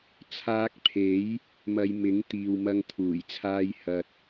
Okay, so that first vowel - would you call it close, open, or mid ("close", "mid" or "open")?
open